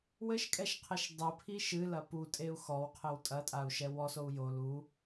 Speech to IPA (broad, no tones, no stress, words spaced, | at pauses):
wɘʃkʼɛʃqʰɘʃ dˤɨpʰi ʃɨlɐ putʼeu̯ xɔwqʰɘw tʼɐtʼau̯ʃɛ wɔsou̯ jol u